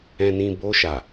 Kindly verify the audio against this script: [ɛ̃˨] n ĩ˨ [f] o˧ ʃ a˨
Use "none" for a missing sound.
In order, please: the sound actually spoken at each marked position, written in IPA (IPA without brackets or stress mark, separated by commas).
ɛ̃˨, b